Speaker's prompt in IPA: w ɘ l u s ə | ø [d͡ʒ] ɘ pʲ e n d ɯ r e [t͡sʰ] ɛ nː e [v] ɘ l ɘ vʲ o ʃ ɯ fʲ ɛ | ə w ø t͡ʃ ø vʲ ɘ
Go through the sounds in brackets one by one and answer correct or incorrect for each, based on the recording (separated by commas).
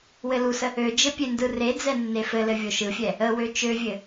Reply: correct, incorrect, incorrect